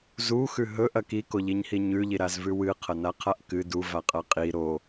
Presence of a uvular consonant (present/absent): present